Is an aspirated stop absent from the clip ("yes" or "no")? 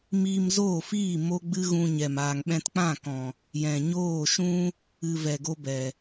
yes